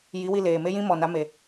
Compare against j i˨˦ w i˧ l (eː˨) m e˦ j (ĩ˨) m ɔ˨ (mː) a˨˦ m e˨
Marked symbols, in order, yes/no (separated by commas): yes, no, no